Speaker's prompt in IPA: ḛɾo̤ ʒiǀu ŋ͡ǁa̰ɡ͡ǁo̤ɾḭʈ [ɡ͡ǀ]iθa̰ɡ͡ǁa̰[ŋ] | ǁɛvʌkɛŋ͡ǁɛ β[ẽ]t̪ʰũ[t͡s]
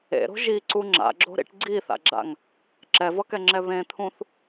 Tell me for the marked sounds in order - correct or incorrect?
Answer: correct, correct, correct, incorrect

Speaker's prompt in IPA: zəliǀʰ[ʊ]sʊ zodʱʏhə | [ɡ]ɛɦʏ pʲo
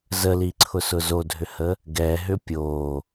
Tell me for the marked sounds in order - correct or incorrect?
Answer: correct, correct

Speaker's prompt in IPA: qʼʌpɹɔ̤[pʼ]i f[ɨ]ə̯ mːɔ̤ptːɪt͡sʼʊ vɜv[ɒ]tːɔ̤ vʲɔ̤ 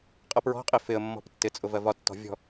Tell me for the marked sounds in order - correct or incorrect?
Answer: incorrect, incorrect, correct

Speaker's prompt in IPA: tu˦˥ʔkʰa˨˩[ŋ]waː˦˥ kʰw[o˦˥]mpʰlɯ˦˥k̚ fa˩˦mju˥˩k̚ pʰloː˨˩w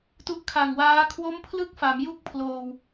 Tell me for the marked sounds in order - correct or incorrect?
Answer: correct, correct

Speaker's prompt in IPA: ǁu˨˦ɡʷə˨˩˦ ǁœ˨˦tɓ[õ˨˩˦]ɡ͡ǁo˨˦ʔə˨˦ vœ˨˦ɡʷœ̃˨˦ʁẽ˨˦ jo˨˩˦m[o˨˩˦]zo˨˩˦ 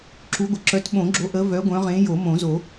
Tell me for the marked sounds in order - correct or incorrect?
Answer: correct, incorrect

